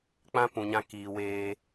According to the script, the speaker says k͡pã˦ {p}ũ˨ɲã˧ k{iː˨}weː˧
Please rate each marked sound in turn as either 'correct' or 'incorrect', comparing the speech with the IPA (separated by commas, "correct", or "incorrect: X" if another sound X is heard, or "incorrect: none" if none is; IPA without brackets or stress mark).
correct, correct